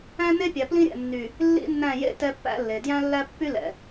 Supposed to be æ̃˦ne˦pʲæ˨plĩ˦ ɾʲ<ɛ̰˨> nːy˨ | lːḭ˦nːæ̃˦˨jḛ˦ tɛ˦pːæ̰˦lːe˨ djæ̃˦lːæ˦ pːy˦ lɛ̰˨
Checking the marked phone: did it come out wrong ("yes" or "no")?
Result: no